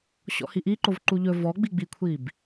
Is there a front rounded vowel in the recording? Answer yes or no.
no